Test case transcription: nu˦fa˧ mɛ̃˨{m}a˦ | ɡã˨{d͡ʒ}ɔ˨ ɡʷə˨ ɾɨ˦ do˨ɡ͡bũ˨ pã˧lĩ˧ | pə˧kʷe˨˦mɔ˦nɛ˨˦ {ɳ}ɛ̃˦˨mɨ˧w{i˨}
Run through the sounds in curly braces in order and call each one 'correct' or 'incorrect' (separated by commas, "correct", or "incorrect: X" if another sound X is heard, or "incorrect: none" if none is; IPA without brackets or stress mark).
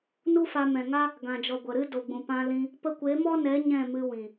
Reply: incorrect: ŋ, correct, incorrect: ɲ, incorrect: ĩ˨